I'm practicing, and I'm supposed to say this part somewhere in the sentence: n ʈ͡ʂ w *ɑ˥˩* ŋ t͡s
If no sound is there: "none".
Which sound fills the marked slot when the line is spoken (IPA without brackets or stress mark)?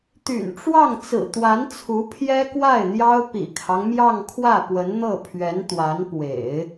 ɑ˥˩